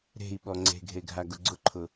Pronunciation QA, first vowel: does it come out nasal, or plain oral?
oral